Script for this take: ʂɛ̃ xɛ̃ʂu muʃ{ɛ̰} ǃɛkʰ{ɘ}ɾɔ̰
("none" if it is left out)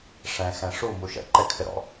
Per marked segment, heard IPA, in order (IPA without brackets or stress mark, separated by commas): ɛ̰, ɘ